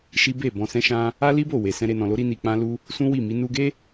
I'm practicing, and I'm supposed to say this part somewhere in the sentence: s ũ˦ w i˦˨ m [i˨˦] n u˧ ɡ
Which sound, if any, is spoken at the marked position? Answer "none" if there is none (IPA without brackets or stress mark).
i˨˦